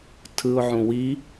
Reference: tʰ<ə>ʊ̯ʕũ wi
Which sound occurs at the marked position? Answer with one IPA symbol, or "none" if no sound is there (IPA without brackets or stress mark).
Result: ɯ